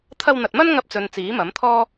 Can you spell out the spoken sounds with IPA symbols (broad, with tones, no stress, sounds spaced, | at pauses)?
t̪ʰ ɐ˧ w n̪ ɐ˨ t̚ m ɐ˥ n ŋ ɐ˧ p̚ t͡s ɵ˨ n t͡s iː˨˥ m ɐ˨˥ m t̪ʰ ɔː˥